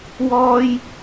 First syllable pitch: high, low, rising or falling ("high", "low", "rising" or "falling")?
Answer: high